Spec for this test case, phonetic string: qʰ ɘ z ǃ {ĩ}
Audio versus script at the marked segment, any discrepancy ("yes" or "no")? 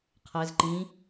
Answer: no